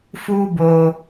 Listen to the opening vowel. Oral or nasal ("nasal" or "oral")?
oral